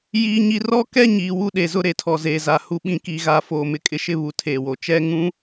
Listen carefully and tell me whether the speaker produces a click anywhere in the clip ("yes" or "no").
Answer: no